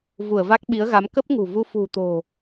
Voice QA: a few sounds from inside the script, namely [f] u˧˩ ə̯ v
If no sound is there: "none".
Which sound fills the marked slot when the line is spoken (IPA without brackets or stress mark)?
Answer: v